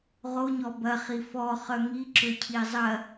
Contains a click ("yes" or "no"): yes